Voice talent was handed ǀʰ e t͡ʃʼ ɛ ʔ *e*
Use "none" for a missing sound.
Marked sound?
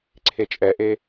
e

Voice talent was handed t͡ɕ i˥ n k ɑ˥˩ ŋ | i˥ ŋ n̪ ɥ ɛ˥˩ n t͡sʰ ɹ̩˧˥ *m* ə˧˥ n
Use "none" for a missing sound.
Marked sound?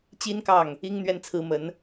m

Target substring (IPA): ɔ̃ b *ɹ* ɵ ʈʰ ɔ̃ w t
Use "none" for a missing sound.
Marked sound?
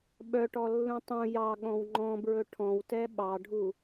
ɹ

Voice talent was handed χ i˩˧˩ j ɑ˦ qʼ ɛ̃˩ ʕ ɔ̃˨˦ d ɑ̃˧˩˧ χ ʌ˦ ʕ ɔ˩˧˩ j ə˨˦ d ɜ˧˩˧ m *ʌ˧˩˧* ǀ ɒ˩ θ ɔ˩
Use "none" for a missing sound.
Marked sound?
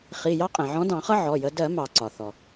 ɑ˧˩˧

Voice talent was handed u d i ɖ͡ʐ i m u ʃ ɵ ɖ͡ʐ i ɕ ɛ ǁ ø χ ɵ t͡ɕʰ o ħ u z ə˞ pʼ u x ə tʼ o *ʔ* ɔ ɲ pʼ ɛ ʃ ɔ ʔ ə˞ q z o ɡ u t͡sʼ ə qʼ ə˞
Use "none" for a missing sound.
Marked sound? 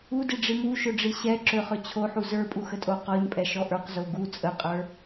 q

